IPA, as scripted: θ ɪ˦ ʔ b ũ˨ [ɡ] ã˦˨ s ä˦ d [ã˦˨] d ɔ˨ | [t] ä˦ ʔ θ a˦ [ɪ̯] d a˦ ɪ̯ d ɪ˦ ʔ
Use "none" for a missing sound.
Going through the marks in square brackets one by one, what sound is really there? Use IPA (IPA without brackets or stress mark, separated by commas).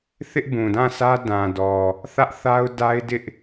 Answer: d, ã˨, θ, ʊ̯